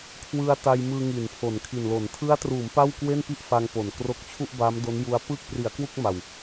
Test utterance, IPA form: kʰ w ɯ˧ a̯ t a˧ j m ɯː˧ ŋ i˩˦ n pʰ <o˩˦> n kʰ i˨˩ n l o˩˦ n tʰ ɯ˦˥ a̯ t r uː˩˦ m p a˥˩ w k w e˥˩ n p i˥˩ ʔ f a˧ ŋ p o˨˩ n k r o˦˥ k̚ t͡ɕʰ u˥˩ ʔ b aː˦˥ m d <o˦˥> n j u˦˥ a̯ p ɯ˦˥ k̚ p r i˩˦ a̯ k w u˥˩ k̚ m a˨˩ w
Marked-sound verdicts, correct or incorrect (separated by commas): correct, correct